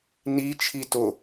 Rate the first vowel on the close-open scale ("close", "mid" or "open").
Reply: close